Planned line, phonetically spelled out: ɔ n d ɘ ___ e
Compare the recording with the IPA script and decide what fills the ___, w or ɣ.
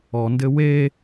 w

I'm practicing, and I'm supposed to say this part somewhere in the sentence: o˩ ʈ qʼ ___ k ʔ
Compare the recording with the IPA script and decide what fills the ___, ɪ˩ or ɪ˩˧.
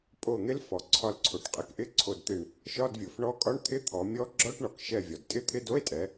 ɪ˩˧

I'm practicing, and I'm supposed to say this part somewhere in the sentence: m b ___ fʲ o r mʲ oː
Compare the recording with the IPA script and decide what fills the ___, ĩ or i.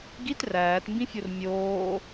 ĩ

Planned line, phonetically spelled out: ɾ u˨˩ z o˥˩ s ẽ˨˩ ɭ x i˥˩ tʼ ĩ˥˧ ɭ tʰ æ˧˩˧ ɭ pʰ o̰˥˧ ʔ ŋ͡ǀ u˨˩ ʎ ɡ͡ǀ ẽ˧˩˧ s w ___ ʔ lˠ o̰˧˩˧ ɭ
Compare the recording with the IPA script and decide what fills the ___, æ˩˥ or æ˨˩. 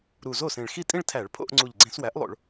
æ˩˥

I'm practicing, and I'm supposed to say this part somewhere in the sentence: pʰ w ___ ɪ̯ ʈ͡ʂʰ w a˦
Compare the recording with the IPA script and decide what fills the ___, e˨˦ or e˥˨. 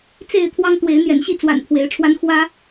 e˨˦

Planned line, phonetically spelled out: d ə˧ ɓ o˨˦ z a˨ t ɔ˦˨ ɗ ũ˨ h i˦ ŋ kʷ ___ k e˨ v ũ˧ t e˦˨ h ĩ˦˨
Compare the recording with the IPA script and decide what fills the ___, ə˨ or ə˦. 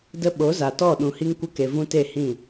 ə˦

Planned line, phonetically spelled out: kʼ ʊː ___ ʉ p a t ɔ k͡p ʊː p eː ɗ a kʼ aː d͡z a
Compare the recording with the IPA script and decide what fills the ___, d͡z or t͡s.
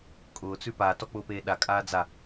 t͡s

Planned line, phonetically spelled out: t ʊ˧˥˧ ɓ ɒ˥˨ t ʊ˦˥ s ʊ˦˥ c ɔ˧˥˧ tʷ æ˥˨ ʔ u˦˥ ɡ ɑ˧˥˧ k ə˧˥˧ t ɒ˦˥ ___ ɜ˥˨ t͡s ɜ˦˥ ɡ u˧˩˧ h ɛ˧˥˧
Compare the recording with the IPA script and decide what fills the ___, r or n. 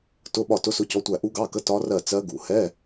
r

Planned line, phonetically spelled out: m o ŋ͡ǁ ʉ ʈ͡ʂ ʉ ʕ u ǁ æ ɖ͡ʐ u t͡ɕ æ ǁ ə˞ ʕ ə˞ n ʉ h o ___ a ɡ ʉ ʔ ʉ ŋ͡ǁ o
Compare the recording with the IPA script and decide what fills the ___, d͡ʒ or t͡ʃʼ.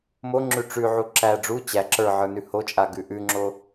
t͡ʃʼ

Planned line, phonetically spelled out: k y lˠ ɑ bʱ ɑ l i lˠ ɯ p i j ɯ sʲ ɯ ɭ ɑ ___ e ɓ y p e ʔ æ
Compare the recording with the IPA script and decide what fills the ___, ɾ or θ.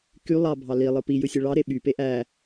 ɾ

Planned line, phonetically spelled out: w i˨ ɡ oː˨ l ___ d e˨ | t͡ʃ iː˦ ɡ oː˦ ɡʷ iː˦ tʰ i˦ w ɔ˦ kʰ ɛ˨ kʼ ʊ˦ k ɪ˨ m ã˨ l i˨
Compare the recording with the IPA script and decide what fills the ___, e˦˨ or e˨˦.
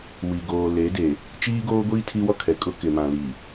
e˨˦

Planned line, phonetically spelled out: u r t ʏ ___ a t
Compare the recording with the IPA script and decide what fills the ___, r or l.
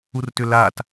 l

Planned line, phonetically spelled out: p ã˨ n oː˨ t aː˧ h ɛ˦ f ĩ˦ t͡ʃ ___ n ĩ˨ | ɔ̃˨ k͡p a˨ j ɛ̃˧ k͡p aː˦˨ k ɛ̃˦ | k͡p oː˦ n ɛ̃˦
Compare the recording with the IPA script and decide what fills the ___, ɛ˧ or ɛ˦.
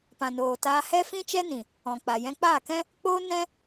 ɛ˦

